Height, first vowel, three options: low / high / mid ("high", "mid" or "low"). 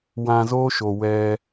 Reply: low